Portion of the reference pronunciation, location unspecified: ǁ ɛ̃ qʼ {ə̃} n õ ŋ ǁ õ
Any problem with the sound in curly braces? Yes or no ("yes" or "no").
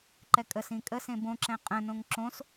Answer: no